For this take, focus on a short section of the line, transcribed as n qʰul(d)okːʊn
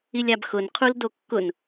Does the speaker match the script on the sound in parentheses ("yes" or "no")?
yes